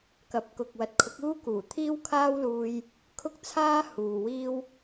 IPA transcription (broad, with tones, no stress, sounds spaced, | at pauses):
k ɐ˨˥ p̚ k ʊ˨ k̚ w ɐ˨˥ t̚ kʰ ʊ˨˥ k̚ uː˥ k uː˨˩ t̪ʰ iː˥ w kʰ aː˥ w l uː˧ j | kʰ ʊ˥ k̚ t͡sʰ aː˥ h uː˨ w iː˧ w